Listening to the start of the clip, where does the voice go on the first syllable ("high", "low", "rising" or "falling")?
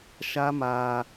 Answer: high